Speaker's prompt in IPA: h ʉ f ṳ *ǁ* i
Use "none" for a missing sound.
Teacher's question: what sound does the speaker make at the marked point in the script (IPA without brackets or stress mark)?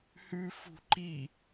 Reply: ǃ